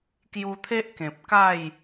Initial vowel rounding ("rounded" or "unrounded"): rounded